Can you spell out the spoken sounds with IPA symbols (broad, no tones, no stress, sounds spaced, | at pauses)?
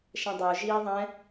ʃ ɛ̃ dˤ ə˞ ʒ iː ðˤ ɛ̃